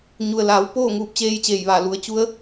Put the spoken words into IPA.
ɲu˩ə̯laː˩˧w poː˥˨ŋuː˧˩p̚t͡ɕeː˧jt͡ɕeː˧˩j ʋa˧˩ lu˩˧ə̯t͡ɕu˧˥ə̯

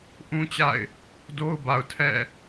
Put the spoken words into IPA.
ʔũ˦t͡ɕa̰˦˨ɪ̯ | do˦ʊ̯ba˨ʊ̯tʰɛ̰˦˨

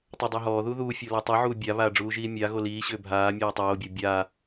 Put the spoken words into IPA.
tˤʏdˤuɦɔːðu ðuːfʲo latˤuʕuː bʲaβaː ɖ͡ʐuːʒiːmʲaɣo liːɕʏː bʱaːmʲɔː tˤoːbʲɒ bʲa

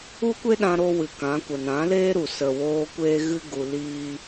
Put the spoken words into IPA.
u˦kʷe˦ɗã˧ ɾo˦wɨ˨kã˨˦ kʷə˨nã˨˦ leː˦ɾu˨ sə˨woː˧ kʷeː˦ ɣɨ˦ɡu˧liː˦

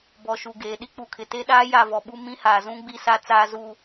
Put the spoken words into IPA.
bɔ˨ʃu˨ɡeː˨ ɗi˦k͡pu˨kʰɪ˨ te˦ɗaː˦ ja˦˨vɔ˨ɓu˦ mĩ˦haː˨zũ˦ ɡ͡bi˦sa˦t͡saː˦zuː˦

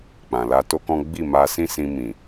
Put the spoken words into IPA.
k͡pã˨la˧to˦kɔ̃˦ ɡ͡bi˦˨ma˧ sĩ˦sĩ˧ mĩ˨

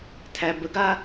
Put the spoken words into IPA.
tʰæbəɡa

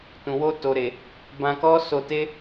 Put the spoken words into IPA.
tũ˨ wo˧ to˨ɾe˨ | bã˧kɔ˦ so˧te˦

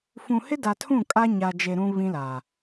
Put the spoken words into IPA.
fũ˨hɪ˦da˨tʰũ˦˨ kʼa˦ɲa˨d͡ʒe˨ ɾũ˨ βĩ˦la˨

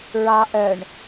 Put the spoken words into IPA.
ɹɑ ʔœɳ

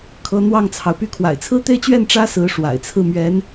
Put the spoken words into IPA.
kʰɤ˧˥n̪wɑ˥˩ŋt͡sʰɑ˩ʊ̯py˥˩ kʰwa̰˨˩ɪ̯t͡sʰɹ̩˥t̪e˥˧ɪ̯t͡ɕɥɛ˥˩n ʈ͡ʂä˥sɹ̩˧˥ ʂwa̰˨˩ɪ̯t͡sʰɹ̩˥˩ mɥɛ˧˥n

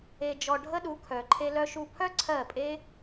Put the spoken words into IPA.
e˧d͡ʒɔ˧ɖʱə˦ɗu˨˦ kʰœ˨ǃʰe˧ lœ˧ʃu˧pʰœ˦ ǀʰɜ˦˨pʼe˦

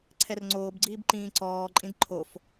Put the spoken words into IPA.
ǀʰɛrŋ͡ǀoːbɡ͡ǀiːb ǃĩːǀɔːǃʼĩd ǃʰof

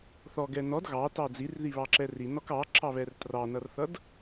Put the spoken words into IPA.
θɔɡɛ nɔd ɣɑtɑ d͡zirðiβɑǁɛ rinɔk ɑǁɑβɛr trɑnʌrθʌd

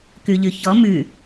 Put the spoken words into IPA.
kʉʎʉçɔ mʉ

